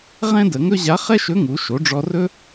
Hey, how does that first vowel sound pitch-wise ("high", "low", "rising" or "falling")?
high